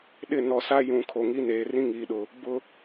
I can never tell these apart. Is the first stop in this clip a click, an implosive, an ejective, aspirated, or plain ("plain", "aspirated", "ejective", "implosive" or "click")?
implosive